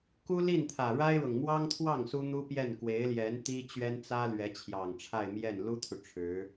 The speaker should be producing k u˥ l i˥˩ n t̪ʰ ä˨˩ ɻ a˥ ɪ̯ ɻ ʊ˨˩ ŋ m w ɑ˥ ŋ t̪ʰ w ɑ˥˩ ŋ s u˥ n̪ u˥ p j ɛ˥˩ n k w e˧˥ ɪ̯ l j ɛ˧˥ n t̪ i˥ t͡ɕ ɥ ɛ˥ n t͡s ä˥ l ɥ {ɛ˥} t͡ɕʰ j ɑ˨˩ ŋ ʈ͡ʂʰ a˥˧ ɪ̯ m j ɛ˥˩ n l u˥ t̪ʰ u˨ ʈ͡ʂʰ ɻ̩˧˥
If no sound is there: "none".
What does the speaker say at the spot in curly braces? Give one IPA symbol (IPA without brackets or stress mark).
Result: ɛ˧˥